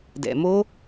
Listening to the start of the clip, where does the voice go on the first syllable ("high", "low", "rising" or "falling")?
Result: low